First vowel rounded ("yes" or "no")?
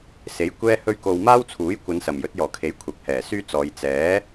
no